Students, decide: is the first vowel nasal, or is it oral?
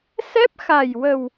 oral